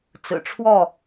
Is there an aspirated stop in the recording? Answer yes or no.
yes